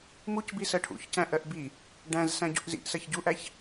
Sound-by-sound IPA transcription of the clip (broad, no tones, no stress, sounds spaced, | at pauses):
m u c b i s ɜ ʈʰ ṵ ç c æ̃ ʔ ɜ ʔ b i | ɖ æ̃ z s æ̃ ɟ ṵ ʔ z ḭ ʔ s ɜ ç ɟ u ʔ æ ç